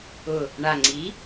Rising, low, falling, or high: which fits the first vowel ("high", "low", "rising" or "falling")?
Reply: low